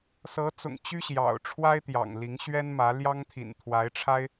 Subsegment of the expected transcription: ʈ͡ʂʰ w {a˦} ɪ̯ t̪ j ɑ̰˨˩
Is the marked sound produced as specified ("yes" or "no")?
yes